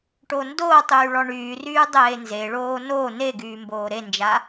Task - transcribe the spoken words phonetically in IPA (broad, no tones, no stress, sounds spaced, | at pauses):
ʈ o n d oː tˤ yː ɭ ɔ ɳ yː r yː dˤ eː n z e ɭ oː n o n e ɡ yː m b oː ɾ e n d͡ʒ a